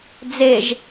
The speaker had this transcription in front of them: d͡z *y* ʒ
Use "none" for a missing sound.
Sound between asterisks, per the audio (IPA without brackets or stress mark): e